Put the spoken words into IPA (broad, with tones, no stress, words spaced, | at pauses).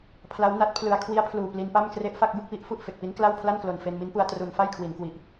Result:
pʰla˦˥wna˦˥t̚pʰlɯ˧a̯ kʰwi˦˥a̯pʰluː˨˩ pli˧npa˥˩m kre˦˥ʔfa˥˩k̚bɯ˥˩k̚wi˥˩ʔ fu˥˩ʔfe˨˩k̚pi˦˥n kla˥˩wpʰla˥˩nklo˨˩n fe˧nmi˦˥npu˧a̯ tru˧n fa˥˩jkʰwi˩˦nkwi˨˩ʔ